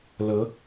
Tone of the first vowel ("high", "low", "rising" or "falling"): rising